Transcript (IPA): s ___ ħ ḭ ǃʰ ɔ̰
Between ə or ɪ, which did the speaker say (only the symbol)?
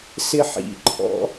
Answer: ɪ